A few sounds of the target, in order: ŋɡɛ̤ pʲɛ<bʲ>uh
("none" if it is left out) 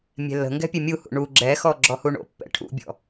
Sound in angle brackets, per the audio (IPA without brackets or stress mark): mʲ